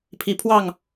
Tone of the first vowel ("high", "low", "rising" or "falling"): rising